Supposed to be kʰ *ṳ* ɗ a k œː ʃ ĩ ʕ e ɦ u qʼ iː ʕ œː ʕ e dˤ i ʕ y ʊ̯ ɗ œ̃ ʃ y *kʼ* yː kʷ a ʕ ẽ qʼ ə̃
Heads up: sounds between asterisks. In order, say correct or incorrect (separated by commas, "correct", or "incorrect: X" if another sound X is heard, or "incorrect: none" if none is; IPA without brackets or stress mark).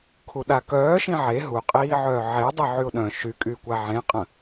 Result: incorrect: u, correct